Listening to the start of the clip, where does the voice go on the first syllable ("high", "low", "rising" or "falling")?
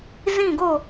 falling